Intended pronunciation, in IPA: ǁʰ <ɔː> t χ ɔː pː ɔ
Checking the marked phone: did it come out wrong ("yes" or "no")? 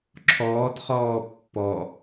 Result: no